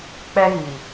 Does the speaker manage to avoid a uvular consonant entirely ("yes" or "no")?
yes